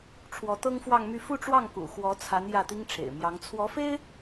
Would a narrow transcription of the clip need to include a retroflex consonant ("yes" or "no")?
yes